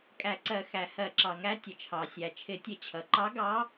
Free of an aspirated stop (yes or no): no